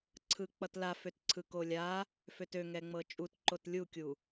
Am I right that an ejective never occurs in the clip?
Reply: no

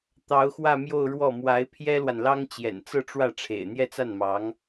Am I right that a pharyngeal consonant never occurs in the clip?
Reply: yes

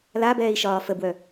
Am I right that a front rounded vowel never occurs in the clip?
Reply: no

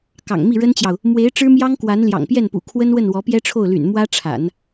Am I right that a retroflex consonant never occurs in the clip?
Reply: no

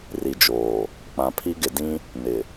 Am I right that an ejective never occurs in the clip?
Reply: yes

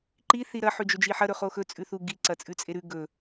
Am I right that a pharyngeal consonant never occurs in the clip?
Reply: no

